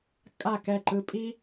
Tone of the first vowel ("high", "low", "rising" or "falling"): falling